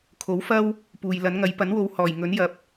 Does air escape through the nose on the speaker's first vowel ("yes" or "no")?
no